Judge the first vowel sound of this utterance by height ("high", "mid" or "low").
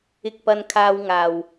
high